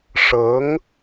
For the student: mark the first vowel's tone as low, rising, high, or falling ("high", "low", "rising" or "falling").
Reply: rising